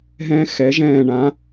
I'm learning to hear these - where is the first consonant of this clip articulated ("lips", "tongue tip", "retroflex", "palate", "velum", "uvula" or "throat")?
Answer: throat